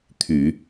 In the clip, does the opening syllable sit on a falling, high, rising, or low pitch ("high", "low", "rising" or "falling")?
low